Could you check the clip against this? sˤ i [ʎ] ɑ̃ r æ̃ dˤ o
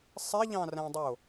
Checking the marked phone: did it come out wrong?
no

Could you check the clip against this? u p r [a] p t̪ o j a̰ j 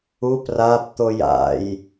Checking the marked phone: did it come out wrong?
no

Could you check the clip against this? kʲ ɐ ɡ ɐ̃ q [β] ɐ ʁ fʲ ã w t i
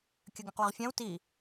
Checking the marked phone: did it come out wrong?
yes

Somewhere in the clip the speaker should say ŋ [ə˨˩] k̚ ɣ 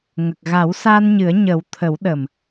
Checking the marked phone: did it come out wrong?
no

